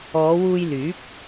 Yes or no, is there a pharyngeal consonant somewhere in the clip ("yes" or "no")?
no